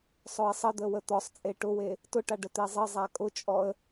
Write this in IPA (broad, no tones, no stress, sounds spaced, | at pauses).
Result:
sˤ ʊ ɪ̯ sˤ ə d̪ ə w ə t̪ ɔ sˤ t͡sʼ e ʈ ʊ w e | t ʊ ʈ a ɖ ə t̪ e zˤ ə zˤ a kʼ ʊ t͡ʃʼ ɔ ə̯